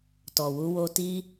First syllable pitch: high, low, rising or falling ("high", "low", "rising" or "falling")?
low